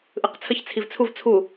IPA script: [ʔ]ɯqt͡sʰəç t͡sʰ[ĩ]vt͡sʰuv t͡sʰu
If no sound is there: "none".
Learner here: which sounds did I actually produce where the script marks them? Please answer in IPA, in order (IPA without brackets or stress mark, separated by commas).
ʔ, i